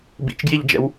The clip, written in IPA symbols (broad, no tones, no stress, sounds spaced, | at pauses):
b ḭ t͡ʃ ɡ j i ʎ d͡ʒ ɛ̰ w